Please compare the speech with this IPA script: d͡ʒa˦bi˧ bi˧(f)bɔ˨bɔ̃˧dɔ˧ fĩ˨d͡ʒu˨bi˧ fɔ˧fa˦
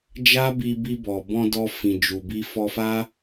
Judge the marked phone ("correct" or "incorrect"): incorrect